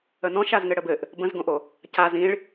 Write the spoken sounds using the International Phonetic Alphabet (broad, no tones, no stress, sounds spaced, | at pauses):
ə n ɔ̃ ʃ a z ŋ ɘ ɽ ə b ɘ ʔ | b ə̃ z ɡ õ ʔ o | c a z ĩ ɭ